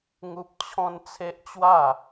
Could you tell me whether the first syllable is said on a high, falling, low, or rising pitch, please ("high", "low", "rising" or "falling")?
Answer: high